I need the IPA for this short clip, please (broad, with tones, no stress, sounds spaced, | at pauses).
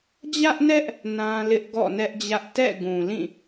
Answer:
d͡ʑ ä˦ ʔ n ɛ˦ ʔ | n ã˦ l ɪ˦ ʔ ɡ ɔ̰˦˨ n ɛ˦ ʔ d͡ʑ ä˦ ʔ t ɛ̰˦˨ ɡ ũ˨ l ĩ˦˨